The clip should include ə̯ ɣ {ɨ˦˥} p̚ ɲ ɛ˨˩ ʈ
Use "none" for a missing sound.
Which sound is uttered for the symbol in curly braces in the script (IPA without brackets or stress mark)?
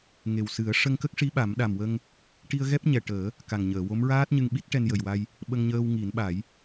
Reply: ɛ˦˥